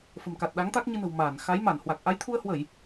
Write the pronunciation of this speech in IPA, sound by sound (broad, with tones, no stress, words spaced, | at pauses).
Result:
fə̤˨˩mka˨˩t̚ɗa˨˦ŋt̪a˦˥k̚ ɲɨ˧nə̤˨˩w maː˧˩n xa˨˦jma˧˩nhwa˨˩k̚ ʔa˨˦jt̪ʰu˧ə̯hwə˧˩˨j